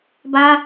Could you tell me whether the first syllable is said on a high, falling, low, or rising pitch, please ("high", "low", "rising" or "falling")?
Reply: high